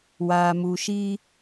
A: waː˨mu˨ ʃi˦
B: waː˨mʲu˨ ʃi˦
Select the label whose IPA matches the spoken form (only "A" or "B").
A